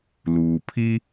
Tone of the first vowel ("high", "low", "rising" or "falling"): low